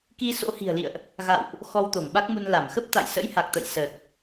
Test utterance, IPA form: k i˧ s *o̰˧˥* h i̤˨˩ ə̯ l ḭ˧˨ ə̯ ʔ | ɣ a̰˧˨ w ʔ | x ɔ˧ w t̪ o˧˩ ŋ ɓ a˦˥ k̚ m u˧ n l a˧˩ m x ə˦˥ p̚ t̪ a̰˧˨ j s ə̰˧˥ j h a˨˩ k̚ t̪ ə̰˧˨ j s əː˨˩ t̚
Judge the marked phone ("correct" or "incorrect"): correct